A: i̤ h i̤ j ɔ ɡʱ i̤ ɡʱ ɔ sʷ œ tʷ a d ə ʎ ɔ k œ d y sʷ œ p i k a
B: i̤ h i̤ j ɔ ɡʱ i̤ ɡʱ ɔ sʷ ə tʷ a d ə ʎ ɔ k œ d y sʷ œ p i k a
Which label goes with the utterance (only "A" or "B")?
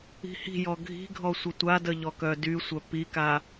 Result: B